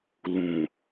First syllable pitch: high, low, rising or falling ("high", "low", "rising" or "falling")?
low